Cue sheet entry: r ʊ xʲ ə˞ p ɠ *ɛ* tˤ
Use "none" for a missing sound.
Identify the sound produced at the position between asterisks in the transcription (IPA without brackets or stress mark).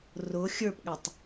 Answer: ɛ